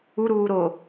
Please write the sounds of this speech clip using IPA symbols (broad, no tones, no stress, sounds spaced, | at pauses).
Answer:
u ɾ uː ɾ o